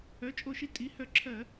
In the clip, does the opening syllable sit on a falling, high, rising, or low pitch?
rising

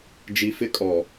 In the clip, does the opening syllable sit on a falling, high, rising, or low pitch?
low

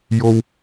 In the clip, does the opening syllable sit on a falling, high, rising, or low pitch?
high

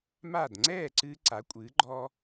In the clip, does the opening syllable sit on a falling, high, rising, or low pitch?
falling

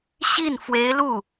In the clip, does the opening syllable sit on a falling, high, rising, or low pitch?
falling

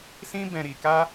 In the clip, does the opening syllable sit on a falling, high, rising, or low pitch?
high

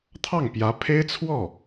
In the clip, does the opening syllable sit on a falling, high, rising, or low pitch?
falling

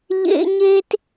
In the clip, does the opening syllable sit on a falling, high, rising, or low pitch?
high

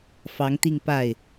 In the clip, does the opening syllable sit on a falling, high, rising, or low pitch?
rising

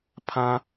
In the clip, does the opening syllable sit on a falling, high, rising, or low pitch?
high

